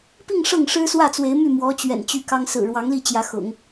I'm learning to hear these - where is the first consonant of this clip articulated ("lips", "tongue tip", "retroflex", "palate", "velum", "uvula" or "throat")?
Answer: lips